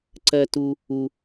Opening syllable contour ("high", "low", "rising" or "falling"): low